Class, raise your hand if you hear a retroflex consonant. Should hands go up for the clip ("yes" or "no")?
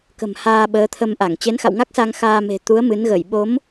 no